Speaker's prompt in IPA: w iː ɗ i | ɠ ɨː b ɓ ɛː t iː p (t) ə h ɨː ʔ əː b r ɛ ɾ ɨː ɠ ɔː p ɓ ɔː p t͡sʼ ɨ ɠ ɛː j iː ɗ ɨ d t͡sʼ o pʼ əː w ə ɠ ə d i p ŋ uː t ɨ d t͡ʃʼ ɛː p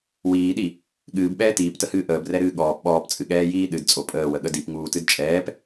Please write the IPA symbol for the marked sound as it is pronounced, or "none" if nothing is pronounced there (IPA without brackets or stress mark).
t